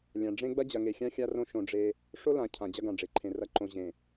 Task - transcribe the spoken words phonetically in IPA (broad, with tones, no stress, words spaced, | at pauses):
lʲã˨ ɖ͡ʐẽ˦ ɡ͡bɐ˦d͡ʑɐ˨ŋe˨xʲã˦ xʲa˦rõ˦ʃõ˨ ɖ͡ʐe˦ | ʂo˦lã˨ cʰã˨d͡ʑɐ˦ɡã˨ɖ͡ʐe˨ ǃʰẽ˨ rɐ˦ ǃõ˨ʑẽ˨